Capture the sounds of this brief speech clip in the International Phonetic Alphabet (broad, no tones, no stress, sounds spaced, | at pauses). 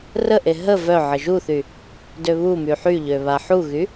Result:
r ə ʔ e ɦ ə v œ ʕ ə ʒ u θ y | d ø β u m y ħ y ʎ ø β a ħ u ɣ y